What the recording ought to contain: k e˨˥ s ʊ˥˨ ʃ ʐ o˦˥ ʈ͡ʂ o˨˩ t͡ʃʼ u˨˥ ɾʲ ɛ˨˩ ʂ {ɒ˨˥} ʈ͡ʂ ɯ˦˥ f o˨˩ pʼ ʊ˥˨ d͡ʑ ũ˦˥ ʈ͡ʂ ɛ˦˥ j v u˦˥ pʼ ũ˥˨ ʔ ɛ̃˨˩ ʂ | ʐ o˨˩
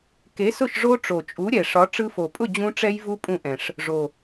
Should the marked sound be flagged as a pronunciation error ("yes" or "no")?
no